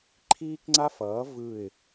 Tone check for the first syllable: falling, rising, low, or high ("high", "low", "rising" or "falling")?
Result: high